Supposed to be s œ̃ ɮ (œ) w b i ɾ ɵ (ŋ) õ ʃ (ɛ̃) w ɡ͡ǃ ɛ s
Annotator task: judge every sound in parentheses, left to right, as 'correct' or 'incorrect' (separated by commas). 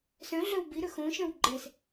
correct, incorrect, incorrect